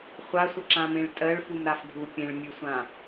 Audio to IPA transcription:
χʷasʷəǁãmẽɭ tʼɜɭfumɾaf ɖʱu pʲẽɭmʲʉsʷã

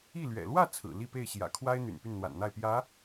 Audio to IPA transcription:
i˥˩lɥɛ̰˨˩ lwä˥˩ t͡sʰɹ̩˨˩li˥˧pe˥˩ɪ̯ ɕjä̰˨˩kʰwa˥ɪ̯ n̪y̰˨˩npy˥˩nn̪wa̰˨˩nn̪a˥˩ɪ̯ pjä˧˥

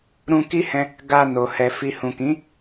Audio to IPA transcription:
ɾũ˧ki˦hɛ̃˧ | ɡa˧ no˨hɛ˨ fi˨hũ˨kĩ˨˦

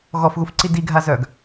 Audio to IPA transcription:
ɣɔfɣufǀi diɡʱazœːɡ

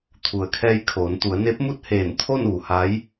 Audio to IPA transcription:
t̪ʰu˩ə̯kʰɛː˧jkʰoː˩˧n t̪u˩˧ə̯ne˧˥p̚mu˥˨t̚ heː˧˩nt̪ʰo˥˨n ʋu˩˧ha˧˥j

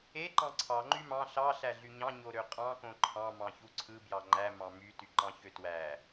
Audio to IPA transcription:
eǃɑ̃ ǀʰɑ ŋ͡ǃymɑ̃ ɬɑ ɬæɮyɲɑ̃ ɲoɾøqʼɑ̃kõ ǃʰɑ̃ mɑ̃çuǀʰɯbjɑ ŋ͡ǃæ mɑ̃myty ǃɑ̃çøtwæ

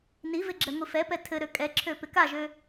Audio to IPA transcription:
nivɪ ɡ͡ǁɛŋʷifɛpɛ tʰɘɾø kʼɛǁʰø pɪkaʒø

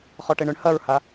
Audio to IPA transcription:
χɔʈeɳʏɳ hɐɹha

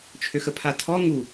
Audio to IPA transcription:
t͡ʃʰøxəpʰatʰɔ ŋu

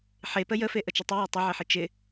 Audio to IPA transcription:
ħe pəjəfe ʔət͡ʃɪtˤɨjɒ tˤɪʕeħɪ t͡ʃɪ

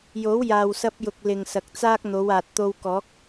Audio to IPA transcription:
jo˨˥wjaː˨wsɐ˧p̚jʊ˨k̚ lɪ˨ŋ sɐ˨k̚t͡saː˥k̚ n̪o˨˧waː˨t̚ t̪o˧wkɔː˨˥k̚

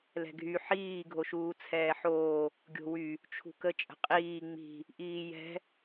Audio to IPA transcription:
lɛ̤ɡʱy ħiː ɡʱoʃuːt͡sʰɛːħoː | ɡʲo̤wy | t͡ʃʰṳkə t͡ʃʼə̤qʼiː ŋ͡mi̤ | ʔiːjɛ̤

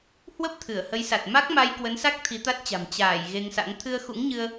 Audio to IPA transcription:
hwə˦˥p̚ t̪ʰɨ˧˩ə̯hə˨˦jsa˨˩t̚ ma˦˥k̚ma˧j kwə˨˦nsa˦˥k̚ t̪ʰi˨˦t̪a˦˥t̚t͡ɕa̤˨˩m t͡ɕaː˧˩j ɣe˧ŋsa̰˧˥ŋ t̪ʰɨ˧ə̯xṵ˧˥ŋɲɨ˧ə̯

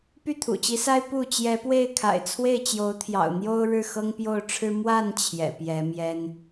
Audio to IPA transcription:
py˥˨t̪ʰṵ˨˩t͡ɕi˨˦sa˦ɪ̯ pu˥˨ t͡ɕjɛ˨˦pwe˥˨ɪ̯kʰa̰˨˩ɪ̯ t͡sʰwe˥˨ɪ̯t͡ɕjo˨˦ʊ̯t̪ʰjɑ̰˨˩ʊ̯ n̪jo˦ʊ̯ ɻɻ̩˥˨xɤ˦ŋpjo˥˨ʊ̯ʈ͡ʂʰɻ̩˦ mwa˥˨n t͡ɕʰjɛ̰˨˩pjɛ˨˦ mjɛ˦n

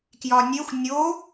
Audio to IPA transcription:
kjɒnʲexʷ nʲo

